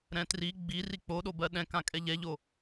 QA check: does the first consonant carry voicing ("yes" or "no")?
yes